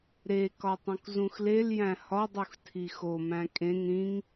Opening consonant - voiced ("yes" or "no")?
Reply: yes